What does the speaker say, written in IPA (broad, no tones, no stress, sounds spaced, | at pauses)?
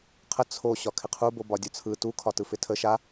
qʰ ə t͡sʰ o ɕ ɒ kʰ ɪ qʰ u b o b ɒ dʲ ɒ t͡sʰ ɯ t u kʰ ɒ t ɯ f ɪ tʰ ə ʃ a